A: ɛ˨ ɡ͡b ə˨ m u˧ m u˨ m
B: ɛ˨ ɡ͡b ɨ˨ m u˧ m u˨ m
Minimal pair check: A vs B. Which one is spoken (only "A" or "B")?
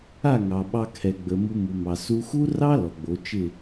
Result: A